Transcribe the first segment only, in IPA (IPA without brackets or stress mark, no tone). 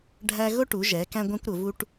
ɖʱ